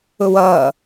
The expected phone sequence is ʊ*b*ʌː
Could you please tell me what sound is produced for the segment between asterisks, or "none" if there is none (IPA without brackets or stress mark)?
w